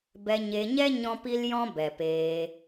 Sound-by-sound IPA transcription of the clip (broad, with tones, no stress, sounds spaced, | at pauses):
b ɛ˧ ɲ e˧ ɲ ɛ˦ ɲ ɔ̃˦ p i˦ l j ɔ̃˦ b ɛ˨ p eː˧